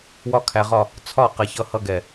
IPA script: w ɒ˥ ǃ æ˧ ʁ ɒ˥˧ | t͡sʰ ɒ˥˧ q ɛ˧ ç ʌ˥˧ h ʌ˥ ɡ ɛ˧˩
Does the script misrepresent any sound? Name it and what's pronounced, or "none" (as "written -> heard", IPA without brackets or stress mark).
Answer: ǃ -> kʰ